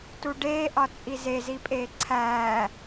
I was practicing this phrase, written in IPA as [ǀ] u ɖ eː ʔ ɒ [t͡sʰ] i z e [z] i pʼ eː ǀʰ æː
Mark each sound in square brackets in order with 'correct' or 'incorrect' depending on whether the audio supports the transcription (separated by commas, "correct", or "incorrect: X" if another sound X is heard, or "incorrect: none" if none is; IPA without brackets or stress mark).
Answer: incorrect: t, incorrect: t͡sʼ, correct